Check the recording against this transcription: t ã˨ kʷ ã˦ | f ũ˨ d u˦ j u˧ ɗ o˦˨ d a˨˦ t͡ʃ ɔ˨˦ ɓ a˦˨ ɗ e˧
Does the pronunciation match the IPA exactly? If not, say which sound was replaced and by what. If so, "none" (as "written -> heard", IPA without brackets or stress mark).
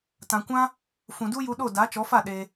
ɓ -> f